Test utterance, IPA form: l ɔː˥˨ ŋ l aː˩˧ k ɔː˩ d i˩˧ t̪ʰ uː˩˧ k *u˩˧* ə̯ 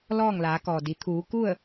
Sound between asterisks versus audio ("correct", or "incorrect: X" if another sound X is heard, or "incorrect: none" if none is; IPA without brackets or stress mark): incorrect: u˥˨